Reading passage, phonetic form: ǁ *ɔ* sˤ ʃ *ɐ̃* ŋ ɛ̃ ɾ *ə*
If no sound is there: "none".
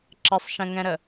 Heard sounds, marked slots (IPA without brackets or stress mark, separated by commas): ə, ə̃, ə